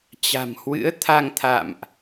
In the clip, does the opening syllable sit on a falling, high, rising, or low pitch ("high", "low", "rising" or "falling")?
low